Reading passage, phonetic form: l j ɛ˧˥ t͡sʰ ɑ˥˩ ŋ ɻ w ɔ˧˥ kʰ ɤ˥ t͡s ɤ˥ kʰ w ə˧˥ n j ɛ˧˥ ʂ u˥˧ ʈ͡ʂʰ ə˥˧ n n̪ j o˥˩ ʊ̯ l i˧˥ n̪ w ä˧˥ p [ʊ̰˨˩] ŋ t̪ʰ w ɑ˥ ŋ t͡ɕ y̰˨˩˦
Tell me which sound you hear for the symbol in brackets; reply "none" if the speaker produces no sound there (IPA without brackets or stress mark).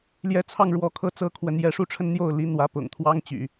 ʊ̰˨˩